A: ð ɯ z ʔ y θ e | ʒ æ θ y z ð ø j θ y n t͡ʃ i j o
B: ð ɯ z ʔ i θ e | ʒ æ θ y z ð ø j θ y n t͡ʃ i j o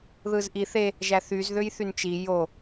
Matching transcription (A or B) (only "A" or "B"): B